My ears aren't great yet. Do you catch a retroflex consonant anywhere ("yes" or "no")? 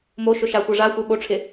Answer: yes